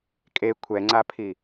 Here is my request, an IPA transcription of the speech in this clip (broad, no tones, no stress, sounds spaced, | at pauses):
kʼ e kʷʰ ɛ ŋ͡ǀ a pʰ i